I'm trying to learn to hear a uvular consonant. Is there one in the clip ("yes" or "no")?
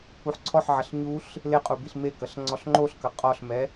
yes